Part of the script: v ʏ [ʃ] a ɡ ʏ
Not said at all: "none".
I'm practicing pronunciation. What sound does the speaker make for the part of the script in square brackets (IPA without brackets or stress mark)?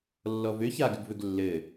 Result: ç